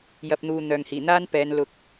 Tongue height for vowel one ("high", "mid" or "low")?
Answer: low